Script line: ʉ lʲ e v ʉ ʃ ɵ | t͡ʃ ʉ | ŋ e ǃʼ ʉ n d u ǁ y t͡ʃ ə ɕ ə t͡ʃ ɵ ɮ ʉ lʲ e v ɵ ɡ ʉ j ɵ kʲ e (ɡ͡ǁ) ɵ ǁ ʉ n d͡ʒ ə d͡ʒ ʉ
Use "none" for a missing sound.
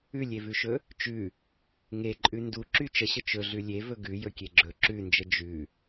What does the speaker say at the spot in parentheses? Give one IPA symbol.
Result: ɡ͡ǁ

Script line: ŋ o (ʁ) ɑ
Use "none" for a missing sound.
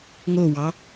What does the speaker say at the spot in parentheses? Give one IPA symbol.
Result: w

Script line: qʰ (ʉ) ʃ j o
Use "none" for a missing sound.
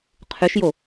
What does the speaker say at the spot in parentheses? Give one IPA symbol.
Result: ʉ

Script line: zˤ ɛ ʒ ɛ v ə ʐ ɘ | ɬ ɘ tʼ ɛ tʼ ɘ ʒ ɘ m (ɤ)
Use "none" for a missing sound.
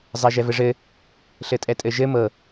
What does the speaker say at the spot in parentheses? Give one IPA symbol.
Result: ɤ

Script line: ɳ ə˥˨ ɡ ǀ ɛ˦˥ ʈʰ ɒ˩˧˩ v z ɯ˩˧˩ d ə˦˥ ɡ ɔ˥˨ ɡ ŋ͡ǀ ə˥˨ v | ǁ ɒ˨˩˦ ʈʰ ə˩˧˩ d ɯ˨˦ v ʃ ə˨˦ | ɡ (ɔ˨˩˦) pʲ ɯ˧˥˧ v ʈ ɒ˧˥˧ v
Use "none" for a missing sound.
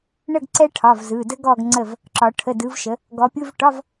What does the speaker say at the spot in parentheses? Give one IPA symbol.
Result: ɔ˨˦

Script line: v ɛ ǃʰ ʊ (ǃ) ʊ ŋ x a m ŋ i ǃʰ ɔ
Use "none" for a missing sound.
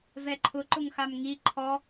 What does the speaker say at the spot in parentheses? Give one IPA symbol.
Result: ǃ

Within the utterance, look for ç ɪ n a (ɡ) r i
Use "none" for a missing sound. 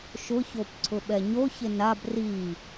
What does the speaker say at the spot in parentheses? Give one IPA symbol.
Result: b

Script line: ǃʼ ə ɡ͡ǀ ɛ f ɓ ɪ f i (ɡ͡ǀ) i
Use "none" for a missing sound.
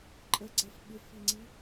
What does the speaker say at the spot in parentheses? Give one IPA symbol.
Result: ŋ͡ǀ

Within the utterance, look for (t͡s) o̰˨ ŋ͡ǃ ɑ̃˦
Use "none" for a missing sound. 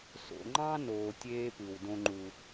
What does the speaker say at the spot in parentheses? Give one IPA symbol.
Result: s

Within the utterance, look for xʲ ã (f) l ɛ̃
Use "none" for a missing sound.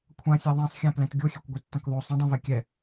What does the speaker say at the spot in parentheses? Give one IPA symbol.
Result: p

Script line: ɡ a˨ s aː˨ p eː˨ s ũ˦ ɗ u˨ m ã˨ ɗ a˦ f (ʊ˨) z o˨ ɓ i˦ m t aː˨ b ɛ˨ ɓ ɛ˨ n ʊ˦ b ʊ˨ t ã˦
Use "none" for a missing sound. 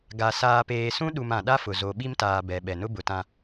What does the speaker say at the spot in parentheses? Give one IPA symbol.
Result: ʊ˨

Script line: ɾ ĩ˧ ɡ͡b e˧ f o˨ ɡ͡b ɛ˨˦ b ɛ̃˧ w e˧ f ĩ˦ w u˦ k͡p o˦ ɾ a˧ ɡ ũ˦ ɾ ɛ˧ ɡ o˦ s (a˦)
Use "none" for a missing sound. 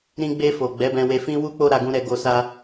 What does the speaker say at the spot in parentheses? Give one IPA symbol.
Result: a˦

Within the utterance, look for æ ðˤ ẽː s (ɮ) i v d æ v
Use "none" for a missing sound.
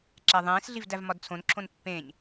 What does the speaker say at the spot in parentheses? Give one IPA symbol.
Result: ɮ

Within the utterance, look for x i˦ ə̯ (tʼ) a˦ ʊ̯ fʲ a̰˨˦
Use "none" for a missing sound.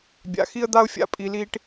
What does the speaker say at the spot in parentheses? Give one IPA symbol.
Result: d̪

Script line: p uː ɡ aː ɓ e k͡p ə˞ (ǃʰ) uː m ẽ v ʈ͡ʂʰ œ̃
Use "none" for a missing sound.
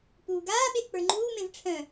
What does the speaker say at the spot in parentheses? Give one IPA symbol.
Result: ŋ͡ǃ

